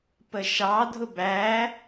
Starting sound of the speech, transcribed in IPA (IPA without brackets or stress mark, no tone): p